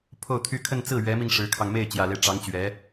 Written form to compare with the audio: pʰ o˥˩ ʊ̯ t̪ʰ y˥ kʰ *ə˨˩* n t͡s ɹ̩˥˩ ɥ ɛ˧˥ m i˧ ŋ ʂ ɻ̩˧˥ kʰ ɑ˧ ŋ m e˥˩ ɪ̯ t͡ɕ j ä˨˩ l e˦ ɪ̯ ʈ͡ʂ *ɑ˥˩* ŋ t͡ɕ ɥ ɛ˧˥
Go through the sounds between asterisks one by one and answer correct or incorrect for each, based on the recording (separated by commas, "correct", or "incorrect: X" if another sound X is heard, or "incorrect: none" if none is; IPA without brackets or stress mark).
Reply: incorrect: ə˥˧, incorrect: ɑ˧˥